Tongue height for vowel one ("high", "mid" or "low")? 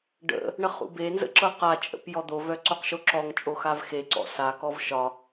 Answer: mid